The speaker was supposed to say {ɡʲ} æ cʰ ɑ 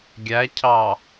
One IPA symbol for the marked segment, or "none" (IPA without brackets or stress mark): ɡʲ